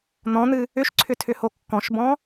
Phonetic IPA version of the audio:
n̪ ɔ̃ n̪ ɨ | ʏ ʃ ǀʰ ʏ tʰ ʏ h o kː ɔ̃ ʃ b ɔ̃

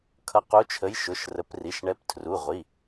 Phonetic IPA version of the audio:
kʰ ʌ˨˦ q u˨˦ t͡ʃʰ ə˨˦ j ʃ ʊ˩˧˩ ʃ r ə˨˦ p r i˩˧˩ ʃ ɳ ɛ˨˦ p tʰ r u˩˧˩ ʁʷ i˩˧˩

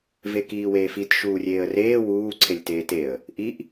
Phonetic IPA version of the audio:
v e k iː w eː f i t ʃ uː rʲ eː ə̯ r eː w uː ǀʰ e lʲ t eː t e ə̯ | ʔ i ʔ

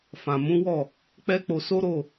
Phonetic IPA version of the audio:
f ã˨ m ũ˨˦ w ɔ˦˨ | k͡p ɛ˦ k͡p o˧ s o˦ ɾ o˦˨

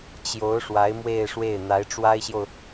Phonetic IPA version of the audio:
t͡ɕ j o˧˥ ʊ̯ ʂ w a˧˥ ɪ̯ m w e˥˧ ɪ̯ ʂ w e˥˩ ɪ̯ n̪ a˧˥ ɪ̯ ʈ͡ʂ w a˥ ɪ̯ ɕ j o˨ ʊ̯

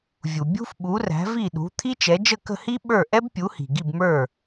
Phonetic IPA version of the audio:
vʲ u˩ bʲ ṳ˥ f ɓ u˩˥ r æ̤˩˥ v i˥˩ ɗ ṳ˩˥ t̪ʰ i˥ t͡ʃ ɛ˩˥ d͡ʒ ə˥˩ k ə̤˥˩ h i˥ ɓ ə˞˥˩ ʔ ɛ˥ b pʲ u˩˥ h i̤˩ ɡ i˥˩ b m ə˞˥˩

